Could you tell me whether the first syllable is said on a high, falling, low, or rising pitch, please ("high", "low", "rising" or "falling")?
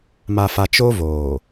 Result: low